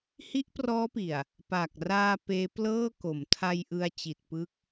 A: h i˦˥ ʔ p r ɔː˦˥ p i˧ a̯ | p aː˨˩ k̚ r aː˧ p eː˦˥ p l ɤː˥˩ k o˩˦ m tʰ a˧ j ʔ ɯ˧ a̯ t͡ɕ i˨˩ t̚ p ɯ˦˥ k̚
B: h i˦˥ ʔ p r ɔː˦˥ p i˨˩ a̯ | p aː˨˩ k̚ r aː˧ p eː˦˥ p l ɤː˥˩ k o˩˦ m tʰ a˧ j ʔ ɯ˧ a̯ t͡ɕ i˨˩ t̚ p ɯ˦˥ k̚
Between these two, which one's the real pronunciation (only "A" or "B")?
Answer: B